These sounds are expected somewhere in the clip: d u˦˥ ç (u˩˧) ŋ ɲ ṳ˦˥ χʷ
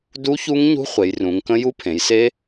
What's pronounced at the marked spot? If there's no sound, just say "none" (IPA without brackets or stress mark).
u˦˥